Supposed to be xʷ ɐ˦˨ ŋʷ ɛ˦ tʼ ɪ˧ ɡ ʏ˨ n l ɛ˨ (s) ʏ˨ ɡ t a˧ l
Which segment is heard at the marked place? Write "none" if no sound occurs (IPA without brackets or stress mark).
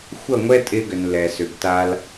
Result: s